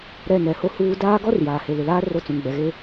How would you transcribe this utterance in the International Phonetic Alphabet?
ɾɛ˦˨nɛ˨˦ho˦huː˦ daː˦ɡɔ˦r jaː˨he˨lɪ˨laː˦ ro˦t͡sũ˨ŋɡ͡bɛ˨ɣe˦

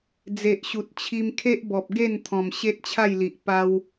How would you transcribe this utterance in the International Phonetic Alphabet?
d͡ze˨ʔɕu˨t̚t͡ɕʰi˧mkʰe˦ʔ bɔ˨p̚ɡe˥˧n t̪ʰɔ̃˨˩mɕe˦t̚t͡ɕʰa˥˧jli˨ʔ pa˧w

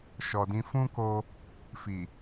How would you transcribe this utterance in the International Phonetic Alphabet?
ʃɔ˨dĩ˧ fũ˦ko˧ | fi˨

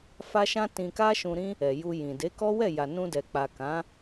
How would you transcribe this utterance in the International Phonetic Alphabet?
fa˦ʃã˦tĩ˧ka˦ ʃũ˧ɾĩ˦ | ɛ˨ju˧jĩ˨ de˨˦kɔ˦wɛ˦˨ ja˨nũ˧dɛ˨ k͡pa˨kã˨˦

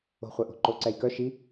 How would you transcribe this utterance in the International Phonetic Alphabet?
o̤χʷœʔo̤ǃo ǀɛjkœ ʃi

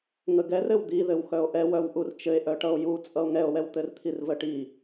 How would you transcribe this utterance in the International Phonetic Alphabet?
ŋəɡɛr ɘwd̪iðɘw xœo̯ʔɛwœw ʔurt͡ʃɘe̯ʔœʈʌo̯ ju t͡sʼʌo̯ŋɛo̯wɛw t̪ɘrt̪ʰirvəʈi

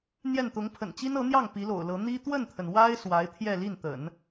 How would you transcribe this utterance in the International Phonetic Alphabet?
n̪jɛ˥˩n t̪ʊ˧˥ŋpʰə̰˨˩nt͡ɕi˥n ɤ˧˥n̪jɑ˥˩ŋ pi˧˥lo̰˨˩ʊ̯lɤ˧˥ n̪i˥ t̪wə˥˩nt̪ʰə˩n wa˥ɪ̯ swa˧˥ɪ̯t̪ʰjɛ˥˧ li˥˩nt̪ə̰˨˩˦n

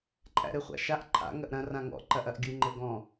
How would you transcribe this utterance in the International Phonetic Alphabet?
ǃʼæ̰ɾɘχʷa̰ʃaʔ ǃʰa̰ ŋɐʔɾɐ̃ rãŋɔ̰ ǃɐʔɐʔɡʲɯ ŋ͡ǃɘɡɔ̃

